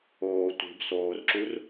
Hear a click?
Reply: yes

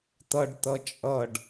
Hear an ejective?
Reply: yes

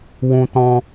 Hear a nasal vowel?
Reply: yes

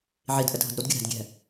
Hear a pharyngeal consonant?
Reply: yes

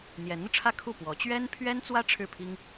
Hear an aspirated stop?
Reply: yes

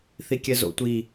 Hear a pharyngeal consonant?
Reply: no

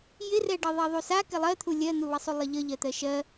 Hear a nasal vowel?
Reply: no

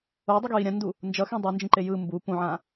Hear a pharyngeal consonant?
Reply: yes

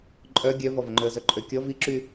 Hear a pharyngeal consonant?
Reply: no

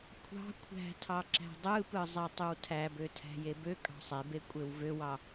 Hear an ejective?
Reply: yes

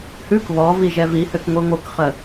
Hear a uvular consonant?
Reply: yes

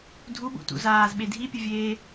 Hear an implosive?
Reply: yes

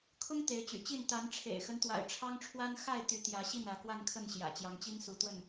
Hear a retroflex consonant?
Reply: yes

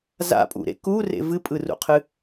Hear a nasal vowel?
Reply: no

